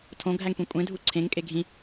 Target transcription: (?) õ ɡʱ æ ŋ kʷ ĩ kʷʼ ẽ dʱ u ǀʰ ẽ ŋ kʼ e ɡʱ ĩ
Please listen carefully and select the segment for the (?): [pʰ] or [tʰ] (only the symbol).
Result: tʰ